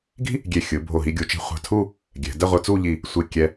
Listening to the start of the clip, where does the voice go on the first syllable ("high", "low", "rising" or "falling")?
high